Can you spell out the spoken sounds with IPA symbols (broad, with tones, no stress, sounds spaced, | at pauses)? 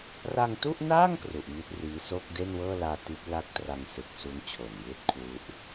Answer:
r a˧ ŋ t u˥˩ ʔ n aː˥˩ ŋ k r u˨˩ ʔ m i˦˥ t̚ r iː˦˥ s oː˥˩ k̚ d e˥˩ n w ɤː˥˩ l aː˧ t i˦˥ t̚ l a˥˩ k̚ t r a˧ ŋ s ɯ˨˩ k̚ s u˦˥ n t͡ɕʰ o˨˩ n j ɯː˦˥ t̚ kʰ w u˦˥ ʔ